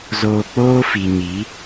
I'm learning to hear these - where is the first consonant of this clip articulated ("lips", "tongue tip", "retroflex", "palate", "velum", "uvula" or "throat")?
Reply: tongue tip